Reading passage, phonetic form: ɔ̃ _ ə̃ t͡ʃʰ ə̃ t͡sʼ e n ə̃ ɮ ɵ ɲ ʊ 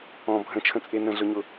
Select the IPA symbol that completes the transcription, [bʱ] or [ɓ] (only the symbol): bʱ